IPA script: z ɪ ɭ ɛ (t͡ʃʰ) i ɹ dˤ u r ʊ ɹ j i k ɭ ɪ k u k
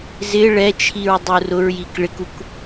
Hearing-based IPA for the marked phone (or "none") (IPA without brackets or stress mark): t͡ʃʰ